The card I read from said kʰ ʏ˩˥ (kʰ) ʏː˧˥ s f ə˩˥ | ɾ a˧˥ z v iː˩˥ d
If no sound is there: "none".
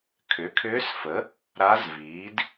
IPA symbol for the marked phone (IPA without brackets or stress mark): kʰ